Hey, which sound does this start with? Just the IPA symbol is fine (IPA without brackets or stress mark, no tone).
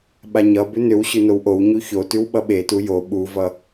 ɓ